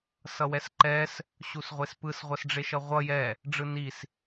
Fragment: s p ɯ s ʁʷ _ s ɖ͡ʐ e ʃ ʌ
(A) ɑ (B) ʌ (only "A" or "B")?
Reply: B